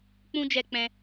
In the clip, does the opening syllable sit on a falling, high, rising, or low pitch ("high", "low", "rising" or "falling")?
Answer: high